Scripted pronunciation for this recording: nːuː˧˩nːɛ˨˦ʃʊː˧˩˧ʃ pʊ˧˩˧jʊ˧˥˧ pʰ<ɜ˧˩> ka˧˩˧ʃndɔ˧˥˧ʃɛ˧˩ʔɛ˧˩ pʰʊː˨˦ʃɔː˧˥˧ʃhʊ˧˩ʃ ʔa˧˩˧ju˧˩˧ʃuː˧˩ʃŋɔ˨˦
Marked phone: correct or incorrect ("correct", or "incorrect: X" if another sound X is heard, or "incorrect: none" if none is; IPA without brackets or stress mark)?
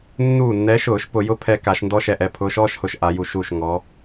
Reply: incorrect: ɛ˧˩